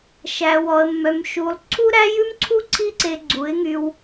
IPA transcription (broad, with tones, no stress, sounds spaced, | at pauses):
ʃ æ˧ w ɔ˧ ə̯ mː œ˧ m ʃ u˧ lˠ ǀʰ u˦ ɾ æ˦ j ʉ˦ m ǀʰ u˦ ǀʰ i˦ ǀ e˧ ɡ͡ǀ u˨˦ ɪ̯ ŋ y˧ w